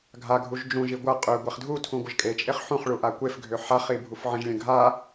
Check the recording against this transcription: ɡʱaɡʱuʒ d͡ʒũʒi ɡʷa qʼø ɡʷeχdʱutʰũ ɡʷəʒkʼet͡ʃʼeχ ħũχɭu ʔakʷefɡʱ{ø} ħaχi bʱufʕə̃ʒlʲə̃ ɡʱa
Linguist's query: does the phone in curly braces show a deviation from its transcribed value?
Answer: no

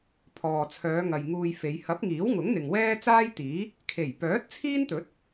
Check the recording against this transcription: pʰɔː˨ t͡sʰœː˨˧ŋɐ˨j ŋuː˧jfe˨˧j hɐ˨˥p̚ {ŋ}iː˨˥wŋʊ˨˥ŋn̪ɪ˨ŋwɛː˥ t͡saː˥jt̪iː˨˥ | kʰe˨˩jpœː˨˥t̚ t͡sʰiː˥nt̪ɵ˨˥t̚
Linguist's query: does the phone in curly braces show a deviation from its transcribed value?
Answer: no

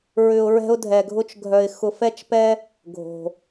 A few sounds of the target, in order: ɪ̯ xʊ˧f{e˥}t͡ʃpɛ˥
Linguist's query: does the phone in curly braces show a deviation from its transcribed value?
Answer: yes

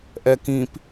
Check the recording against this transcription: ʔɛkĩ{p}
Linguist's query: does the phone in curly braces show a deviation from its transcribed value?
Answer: no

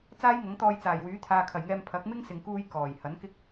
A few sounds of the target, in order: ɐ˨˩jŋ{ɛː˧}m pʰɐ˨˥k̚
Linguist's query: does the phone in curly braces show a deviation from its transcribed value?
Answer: no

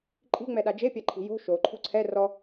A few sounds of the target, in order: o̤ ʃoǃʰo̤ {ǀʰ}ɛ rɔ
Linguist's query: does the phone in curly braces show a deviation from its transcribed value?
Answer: no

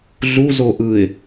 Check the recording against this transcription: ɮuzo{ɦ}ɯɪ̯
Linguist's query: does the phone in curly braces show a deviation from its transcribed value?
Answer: yes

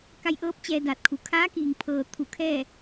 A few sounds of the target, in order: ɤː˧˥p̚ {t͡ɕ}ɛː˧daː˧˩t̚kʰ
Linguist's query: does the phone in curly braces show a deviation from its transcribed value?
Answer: no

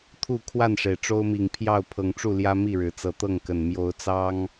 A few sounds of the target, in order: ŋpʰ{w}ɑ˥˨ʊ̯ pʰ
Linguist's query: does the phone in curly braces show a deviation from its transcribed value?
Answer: yes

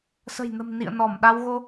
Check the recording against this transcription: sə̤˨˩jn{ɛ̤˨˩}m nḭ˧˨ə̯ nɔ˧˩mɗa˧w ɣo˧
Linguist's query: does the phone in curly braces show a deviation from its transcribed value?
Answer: yes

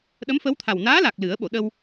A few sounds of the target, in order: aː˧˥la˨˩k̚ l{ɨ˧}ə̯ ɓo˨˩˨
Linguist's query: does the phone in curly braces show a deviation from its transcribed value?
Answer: yes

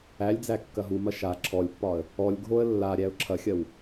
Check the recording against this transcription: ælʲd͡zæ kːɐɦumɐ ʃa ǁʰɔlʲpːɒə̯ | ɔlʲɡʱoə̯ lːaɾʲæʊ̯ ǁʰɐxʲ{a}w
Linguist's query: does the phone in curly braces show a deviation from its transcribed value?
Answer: yes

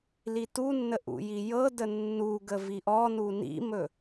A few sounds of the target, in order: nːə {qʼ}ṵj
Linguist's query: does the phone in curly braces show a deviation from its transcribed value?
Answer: yes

